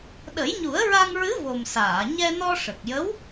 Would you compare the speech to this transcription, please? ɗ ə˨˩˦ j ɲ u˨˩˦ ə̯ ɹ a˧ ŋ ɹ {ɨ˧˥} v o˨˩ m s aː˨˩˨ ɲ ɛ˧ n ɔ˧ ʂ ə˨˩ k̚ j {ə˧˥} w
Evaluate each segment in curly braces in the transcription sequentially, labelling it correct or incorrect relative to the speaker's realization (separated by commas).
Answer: correct, correct